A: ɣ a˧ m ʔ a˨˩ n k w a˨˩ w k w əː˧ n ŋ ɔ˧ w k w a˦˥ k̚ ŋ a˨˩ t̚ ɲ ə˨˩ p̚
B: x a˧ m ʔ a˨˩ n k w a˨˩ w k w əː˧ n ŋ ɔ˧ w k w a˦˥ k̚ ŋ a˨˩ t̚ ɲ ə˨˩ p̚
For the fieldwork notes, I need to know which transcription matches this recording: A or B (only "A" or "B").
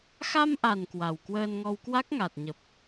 B